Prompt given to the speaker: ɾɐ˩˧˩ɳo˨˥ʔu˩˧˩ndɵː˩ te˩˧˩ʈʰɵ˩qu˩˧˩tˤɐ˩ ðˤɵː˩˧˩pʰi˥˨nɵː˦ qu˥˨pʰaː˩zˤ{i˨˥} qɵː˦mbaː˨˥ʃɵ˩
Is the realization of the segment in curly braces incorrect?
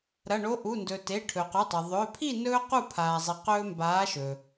yes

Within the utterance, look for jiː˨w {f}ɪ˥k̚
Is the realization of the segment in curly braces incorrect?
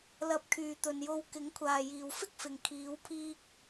no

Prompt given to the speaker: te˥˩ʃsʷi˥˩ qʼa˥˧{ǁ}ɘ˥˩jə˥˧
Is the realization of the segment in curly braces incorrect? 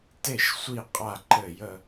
yes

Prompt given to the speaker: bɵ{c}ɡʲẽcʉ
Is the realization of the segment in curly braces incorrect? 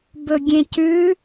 yes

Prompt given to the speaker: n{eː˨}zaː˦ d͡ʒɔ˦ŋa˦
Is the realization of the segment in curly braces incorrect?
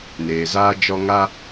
no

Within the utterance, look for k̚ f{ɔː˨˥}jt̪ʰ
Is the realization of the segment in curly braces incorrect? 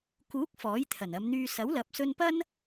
no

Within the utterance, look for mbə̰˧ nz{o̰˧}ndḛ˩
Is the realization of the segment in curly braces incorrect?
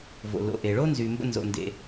yes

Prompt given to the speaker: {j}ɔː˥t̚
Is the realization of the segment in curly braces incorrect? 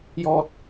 no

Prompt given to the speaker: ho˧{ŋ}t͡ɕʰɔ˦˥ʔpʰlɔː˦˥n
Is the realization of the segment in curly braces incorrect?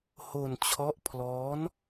yes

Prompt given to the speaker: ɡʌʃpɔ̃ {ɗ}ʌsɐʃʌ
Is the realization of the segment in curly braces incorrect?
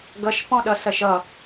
no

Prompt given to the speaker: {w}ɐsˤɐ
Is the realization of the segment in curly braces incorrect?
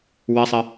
no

